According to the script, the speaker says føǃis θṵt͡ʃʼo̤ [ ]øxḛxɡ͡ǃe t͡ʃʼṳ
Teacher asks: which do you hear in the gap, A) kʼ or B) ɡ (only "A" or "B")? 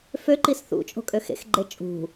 A